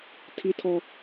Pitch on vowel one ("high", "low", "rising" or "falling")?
high